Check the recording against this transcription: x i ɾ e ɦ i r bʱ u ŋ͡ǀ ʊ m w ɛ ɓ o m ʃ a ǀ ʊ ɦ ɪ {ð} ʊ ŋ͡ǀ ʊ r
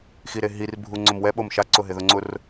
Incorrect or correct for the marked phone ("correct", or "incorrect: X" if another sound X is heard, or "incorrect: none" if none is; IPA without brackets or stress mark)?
correct